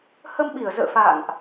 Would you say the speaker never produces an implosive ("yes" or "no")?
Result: no